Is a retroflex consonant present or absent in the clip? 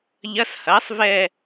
absent